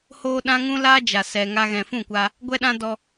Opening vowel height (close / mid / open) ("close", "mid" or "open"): mid